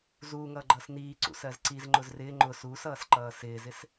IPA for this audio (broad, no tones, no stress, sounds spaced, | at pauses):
z uː ŋ ʌː ɡ͡ǃ ʌː s n iː ǀ ṵ s ɜ z ǀ i z ŋ͡ǃ ʊ z r ɪː ŋ͡ǃ ʊ s uː s ʌː s ǃ ʌː s ɪː z ɪ s